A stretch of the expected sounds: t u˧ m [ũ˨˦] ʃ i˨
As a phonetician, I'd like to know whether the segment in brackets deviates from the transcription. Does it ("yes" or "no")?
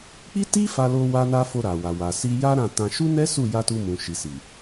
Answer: yes